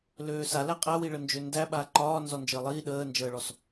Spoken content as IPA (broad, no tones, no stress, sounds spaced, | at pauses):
l øː s a l æ qʼ æ w i ɭ ə n d͡ʒ ø n d æ ɓ a ǃ ɒː n z ɔ n d͡ʒ əː lˠ iː ɗ əː n d͡ʒ əː ɭ ɔ s